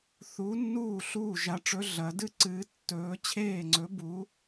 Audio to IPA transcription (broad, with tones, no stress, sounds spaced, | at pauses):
θ u˨˥ nː uː˥˩ ɬ uː˥˩ ʒ a˨˥ ʈ͡ʂ ɵ˨˥ ɮ ɐ˨˥ d ɨ˥˩ ǀ ɨː˨˥ tː ɵː˨˥ t͡ɕʰ eː˥˩ ŋ͡ǀ ɵ˨˥ b u˨˥